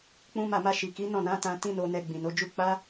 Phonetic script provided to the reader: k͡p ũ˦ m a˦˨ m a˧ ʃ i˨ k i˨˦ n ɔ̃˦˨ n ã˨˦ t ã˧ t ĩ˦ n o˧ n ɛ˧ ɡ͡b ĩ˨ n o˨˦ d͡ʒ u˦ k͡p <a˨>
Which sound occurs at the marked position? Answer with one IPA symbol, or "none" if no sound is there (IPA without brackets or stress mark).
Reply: a˦